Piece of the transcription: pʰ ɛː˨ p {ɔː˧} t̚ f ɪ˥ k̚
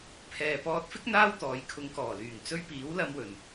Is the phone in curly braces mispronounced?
no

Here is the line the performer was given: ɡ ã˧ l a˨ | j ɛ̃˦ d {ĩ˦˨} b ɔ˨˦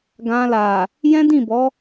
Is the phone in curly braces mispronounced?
no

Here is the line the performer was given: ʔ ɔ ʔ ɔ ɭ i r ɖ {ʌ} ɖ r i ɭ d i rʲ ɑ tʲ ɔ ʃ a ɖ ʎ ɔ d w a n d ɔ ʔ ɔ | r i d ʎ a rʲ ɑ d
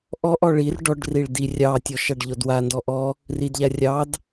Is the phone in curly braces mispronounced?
yes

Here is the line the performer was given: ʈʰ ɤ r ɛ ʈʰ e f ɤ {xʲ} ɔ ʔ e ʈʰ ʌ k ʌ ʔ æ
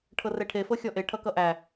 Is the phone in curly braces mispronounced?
no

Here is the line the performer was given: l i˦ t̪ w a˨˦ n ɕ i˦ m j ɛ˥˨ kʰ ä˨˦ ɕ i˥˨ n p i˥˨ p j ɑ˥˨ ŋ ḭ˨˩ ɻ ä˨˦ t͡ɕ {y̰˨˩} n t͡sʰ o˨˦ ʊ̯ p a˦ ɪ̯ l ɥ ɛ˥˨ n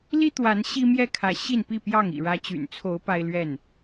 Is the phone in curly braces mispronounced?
no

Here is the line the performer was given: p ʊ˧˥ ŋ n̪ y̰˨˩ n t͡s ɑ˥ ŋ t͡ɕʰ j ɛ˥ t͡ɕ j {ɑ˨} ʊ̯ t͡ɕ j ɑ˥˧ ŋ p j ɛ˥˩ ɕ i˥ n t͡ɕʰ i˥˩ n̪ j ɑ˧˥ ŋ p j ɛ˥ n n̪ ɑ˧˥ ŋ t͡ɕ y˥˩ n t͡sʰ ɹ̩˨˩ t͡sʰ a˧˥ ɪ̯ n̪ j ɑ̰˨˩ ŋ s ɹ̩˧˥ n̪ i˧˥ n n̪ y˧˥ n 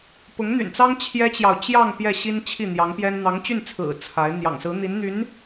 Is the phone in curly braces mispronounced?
no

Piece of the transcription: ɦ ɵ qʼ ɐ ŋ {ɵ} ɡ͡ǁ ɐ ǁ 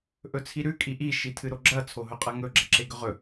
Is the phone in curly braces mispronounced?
no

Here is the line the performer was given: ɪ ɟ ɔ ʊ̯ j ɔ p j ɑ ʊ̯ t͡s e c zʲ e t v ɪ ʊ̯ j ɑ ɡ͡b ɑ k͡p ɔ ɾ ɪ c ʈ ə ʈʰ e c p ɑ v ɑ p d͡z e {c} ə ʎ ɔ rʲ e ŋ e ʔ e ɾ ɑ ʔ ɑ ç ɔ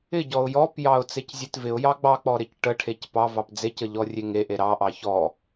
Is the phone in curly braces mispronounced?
no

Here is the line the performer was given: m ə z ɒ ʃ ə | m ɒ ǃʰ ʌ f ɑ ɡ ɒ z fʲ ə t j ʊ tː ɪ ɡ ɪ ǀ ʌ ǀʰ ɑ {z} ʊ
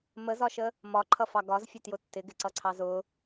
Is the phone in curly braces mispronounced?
no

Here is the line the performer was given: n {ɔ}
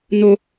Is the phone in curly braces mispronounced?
yes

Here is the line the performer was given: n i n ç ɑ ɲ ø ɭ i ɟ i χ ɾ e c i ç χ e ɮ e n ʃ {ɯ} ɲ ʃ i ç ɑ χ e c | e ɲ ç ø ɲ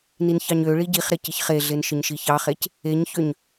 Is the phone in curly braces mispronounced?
no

